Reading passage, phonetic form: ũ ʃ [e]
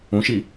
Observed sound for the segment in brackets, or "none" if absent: i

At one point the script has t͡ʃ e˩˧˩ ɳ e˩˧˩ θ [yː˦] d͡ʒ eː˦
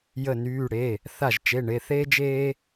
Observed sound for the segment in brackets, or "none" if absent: eː˦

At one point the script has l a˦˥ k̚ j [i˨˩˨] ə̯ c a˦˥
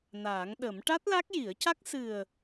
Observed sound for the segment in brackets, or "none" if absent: i˨˩˦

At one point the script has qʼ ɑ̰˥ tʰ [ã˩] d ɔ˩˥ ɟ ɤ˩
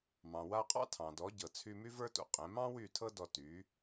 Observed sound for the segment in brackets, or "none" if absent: ɑ̃˩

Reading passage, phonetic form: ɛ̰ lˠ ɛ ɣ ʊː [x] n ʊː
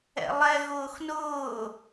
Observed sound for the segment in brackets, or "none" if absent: x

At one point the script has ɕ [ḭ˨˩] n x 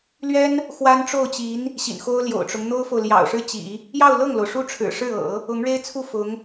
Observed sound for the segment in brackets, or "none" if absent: ḭ˨˩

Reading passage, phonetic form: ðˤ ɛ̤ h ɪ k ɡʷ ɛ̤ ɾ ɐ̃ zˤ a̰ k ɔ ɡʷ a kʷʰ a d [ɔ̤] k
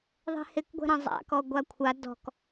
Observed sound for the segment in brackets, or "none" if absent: ɔ̤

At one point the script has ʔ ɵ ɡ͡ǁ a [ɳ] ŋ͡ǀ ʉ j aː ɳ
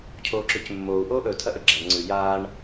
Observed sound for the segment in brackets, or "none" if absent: ɳ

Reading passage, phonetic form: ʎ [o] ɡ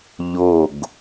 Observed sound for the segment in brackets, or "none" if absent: o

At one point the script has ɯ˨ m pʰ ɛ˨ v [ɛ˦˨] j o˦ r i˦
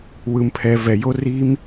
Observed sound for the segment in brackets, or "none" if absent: ɛ˨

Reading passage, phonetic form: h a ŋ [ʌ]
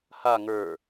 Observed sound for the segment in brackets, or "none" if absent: ə˞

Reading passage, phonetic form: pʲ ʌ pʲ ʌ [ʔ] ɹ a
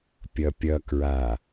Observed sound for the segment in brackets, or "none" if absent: k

